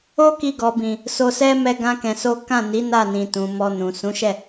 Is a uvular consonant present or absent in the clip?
absent